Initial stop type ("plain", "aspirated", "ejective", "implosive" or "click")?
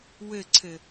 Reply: click